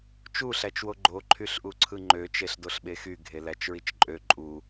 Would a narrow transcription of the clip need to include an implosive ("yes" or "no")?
yes